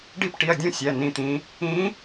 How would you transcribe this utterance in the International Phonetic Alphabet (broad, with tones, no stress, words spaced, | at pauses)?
ɖi˦˨pʈi˩˧˩ɐ̯ dʲũ˦˨sʲæ˩˧˩ nĩ˩˧t̪ĩ˩˧ | ĩ˧˥